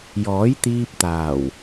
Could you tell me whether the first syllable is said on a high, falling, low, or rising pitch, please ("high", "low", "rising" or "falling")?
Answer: rising